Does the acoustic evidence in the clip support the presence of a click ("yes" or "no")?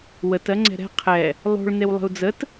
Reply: yes